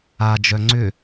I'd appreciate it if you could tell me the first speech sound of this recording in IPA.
a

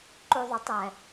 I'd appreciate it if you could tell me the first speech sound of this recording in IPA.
ǃ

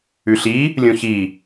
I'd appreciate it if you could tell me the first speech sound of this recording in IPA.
ʉ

